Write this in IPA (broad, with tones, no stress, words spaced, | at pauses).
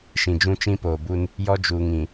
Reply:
ʃĩ˨d͡ʒũ˦ t͡ʃĩ˦poː˨bu˦n | jɔ˦d͡ʒuː˨ŋ ĩ˨